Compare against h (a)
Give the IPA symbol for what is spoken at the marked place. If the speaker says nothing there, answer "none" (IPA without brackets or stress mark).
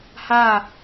a